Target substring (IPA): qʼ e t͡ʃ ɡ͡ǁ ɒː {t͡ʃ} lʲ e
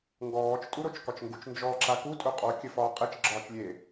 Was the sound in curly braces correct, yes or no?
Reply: yes